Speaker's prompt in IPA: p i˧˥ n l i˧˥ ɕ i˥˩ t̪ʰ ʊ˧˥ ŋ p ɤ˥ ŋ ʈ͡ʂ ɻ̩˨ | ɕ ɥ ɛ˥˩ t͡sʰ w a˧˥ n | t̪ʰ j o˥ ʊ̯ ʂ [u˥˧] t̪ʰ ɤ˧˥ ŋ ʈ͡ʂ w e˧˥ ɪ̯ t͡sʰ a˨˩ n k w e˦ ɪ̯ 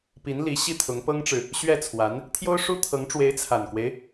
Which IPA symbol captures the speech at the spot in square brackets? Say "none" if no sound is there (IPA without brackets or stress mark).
u˥